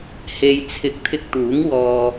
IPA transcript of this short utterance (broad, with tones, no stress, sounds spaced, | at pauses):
h e˧ j t͡sʰ ɪ˧ k̚ t̪ʰ ɪ˧ k̚ t̪ uː˨˥ ŋ w ɔː˧